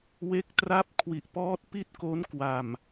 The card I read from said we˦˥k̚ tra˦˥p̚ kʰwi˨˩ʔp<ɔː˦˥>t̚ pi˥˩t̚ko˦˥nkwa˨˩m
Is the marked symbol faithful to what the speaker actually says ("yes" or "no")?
yes